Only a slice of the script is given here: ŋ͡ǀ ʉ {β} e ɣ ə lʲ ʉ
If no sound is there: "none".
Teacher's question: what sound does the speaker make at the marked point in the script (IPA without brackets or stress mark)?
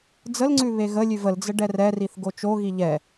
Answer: β